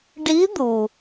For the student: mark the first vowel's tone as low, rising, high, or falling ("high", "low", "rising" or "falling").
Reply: rising